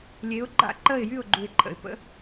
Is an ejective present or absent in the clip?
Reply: absent